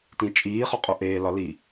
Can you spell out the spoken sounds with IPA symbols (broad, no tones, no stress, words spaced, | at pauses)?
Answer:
tĩt͡ʃʼiː χɒqʼoʔeː lɒli